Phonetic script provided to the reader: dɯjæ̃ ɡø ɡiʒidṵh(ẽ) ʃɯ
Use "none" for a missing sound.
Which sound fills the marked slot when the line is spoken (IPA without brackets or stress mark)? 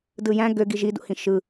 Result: ĩ